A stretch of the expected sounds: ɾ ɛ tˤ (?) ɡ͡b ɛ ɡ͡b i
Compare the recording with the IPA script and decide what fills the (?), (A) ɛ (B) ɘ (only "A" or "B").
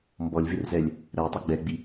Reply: A